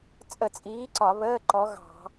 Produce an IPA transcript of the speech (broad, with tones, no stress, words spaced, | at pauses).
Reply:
t͡sʼə˧˩˧t͡sʼiː˨˦ ǀɒ˧˩˧βəː˧˥˧ ǃɔ˨˦ɣɑ̤˧˩˧